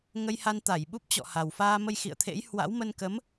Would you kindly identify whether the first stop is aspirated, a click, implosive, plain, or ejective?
plain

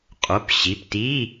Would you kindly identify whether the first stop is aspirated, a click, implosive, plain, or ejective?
ejective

